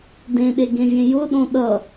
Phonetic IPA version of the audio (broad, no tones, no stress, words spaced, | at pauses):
dẽɗeɡẽvʲẽ jʊɗõ ɗʌ